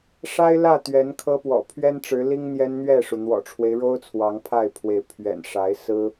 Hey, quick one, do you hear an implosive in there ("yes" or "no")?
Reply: no